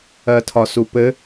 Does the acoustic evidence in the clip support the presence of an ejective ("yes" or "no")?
no